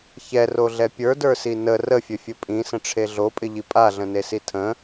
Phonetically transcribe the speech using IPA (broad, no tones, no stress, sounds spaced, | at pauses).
ç ɛ r o ɮ ɛ pʲ ə˞ d ə˞ s i n ə r ə fʲ ɵ fʲ ɵ pʼ ĩ s ə̃ ʈ͡ʂʰ e ɮ o pʼ ɪ ʎ i pʼ a ɮ ə̃ n e s i tʰ ə̃